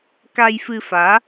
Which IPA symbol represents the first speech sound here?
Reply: k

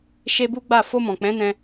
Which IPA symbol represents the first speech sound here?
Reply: ʃ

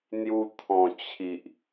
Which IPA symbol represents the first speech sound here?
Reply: n̪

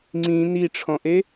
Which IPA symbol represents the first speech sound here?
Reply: ŋ͡ǀ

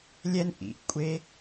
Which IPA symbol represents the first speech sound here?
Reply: lʲ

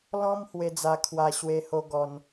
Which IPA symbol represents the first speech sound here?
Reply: l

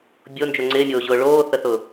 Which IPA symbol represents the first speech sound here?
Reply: bʲ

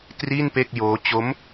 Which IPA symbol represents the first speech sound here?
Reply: t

